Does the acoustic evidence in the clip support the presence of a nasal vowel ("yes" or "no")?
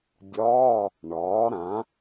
yes